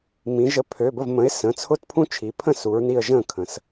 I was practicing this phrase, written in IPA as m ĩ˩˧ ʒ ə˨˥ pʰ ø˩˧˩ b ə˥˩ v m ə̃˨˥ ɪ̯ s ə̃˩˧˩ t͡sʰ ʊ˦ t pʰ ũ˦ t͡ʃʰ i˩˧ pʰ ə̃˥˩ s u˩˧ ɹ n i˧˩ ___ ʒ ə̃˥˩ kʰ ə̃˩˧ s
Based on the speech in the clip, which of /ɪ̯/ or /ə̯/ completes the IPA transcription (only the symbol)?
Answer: ə̯